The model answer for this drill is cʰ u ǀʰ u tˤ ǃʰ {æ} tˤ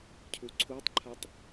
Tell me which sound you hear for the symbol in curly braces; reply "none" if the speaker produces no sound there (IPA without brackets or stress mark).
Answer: a